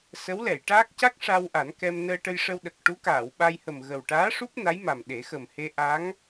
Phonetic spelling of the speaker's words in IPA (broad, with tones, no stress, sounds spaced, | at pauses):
s ə˧˥ w l ɛ˨˩˨ j ʈ aː˦˥ k̚ c a˦˥ k̚ ʂ a˧ w ʔ a˨˩˦ n k ɛ˧ m n əː˧ ʈ ə˧ j ʂ ə˧ w ɗ ə˨˩ k̚ ʈ u˧˥ k aː˨˩˨ w ɓ a˧ j h ə˨˩ m ɣ ə˨˩ w ʈ aː˧˥ ʂ u˦˥ p̚ n a˧˥ j m a˨˩ m ɗ e˨˩˦ x ə˨˩ m h e˧ ʔ a˧˥ ŋ